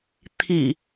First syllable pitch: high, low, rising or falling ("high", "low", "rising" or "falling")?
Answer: low